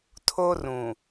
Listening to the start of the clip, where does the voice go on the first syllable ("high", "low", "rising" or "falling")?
high